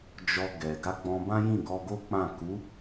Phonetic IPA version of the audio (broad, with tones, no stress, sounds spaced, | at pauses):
d͡ʒ ɔ˧ ɡ ɛ˨ ɡ a˧ ɡ͡b ɔ̃˧ b ã˦ j ĩ˦˨ ɡ ɔ˧ ɡ o˦ k͡p ã˦˨ k u˨˦